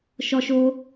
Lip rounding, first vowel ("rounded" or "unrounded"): rounded